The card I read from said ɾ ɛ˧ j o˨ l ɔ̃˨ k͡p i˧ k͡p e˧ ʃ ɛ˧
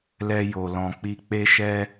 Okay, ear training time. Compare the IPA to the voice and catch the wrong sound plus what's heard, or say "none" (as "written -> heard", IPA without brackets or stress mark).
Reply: ɾ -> l